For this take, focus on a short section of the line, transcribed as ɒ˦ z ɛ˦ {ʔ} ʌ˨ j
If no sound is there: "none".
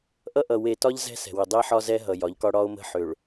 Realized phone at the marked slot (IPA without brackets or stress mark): ɦ